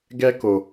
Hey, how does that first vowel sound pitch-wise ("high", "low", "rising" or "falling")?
high